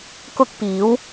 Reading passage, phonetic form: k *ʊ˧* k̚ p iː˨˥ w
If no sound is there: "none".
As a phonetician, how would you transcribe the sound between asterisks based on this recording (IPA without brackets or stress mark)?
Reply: ʊ˥